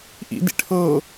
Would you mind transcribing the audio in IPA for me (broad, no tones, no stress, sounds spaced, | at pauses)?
ʔ ḭ d ḭ ʈʰ ɤ